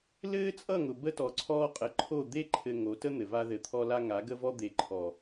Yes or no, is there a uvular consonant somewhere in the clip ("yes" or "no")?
yes